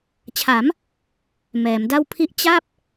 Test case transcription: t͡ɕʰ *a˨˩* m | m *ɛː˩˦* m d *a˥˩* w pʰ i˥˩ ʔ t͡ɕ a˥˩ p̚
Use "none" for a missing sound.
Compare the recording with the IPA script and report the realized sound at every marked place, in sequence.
a˩˦, ɛː˩˦, a˥˩

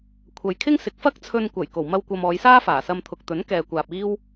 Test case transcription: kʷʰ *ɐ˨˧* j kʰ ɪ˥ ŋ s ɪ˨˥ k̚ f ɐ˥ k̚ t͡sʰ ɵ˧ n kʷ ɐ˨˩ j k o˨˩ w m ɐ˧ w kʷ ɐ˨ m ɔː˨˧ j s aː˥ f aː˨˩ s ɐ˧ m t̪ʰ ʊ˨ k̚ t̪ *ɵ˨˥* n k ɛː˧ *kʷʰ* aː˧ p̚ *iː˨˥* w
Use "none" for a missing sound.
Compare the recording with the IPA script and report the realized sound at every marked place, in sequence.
ɐ˨˧, ɵ˨˥, kʷ, iː˥

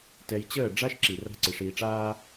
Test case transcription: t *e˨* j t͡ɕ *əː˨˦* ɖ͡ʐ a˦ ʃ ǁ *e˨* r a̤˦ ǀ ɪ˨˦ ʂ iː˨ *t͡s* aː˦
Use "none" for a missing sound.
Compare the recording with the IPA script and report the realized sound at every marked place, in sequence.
ɛ˨, əː˦˨, i˨, ʈ͡ʂ

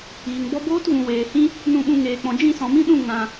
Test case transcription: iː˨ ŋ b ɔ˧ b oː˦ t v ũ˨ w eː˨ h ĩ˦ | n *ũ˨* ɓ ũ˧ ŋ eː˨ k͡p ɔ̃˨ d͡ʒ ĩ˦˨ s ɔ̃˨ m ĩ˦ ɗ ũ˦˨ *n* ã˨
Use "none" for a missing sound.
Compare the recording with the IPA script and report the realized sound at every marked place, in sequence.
ũ˦˨, ŋ

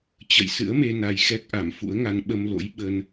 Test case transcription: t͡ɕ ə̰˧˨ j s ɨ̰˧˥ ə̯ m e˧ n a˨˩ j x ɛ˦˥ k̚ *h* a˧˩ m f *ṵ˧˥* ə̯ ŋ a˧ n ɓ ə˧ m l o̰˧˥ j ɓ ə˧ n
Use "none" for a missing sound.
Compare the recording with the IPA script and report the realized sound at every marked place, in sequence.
ʔ, ṵ˧˥

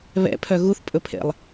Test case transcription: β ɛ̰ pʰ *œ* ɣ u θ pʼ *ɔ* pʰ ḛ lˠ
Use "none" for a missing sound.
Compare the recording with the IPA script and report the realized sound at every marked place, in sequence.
œ, ɵ

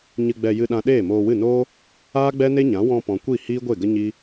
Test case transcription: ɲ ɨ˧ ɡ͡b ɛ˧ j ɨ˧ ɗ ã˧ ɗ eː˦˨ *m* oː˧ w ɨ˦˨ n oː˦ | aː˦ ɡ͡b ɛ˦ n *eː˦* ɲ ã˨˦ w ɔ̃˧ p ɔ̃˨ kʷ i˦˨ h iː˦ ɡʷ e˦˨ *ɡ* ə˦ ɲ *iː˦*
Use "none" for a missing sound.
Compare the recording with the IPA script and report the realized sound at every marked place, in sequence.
m, e˦, ɡ, i˦

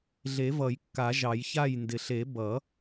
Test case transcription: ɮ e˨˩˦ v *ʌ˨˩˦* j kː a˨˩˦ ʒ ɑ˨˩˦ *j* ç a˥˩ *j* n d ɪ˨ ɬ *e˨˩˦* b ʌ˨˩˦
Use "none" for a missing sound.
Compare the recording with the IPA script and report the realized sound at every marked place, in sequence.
ʌ˨˩˦, j, j, e˨˩˦

